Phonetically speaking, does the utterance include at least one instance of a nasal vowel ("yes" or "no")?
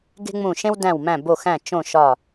yes